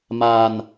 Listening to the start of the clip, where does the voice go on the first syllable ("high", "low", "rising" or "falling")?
low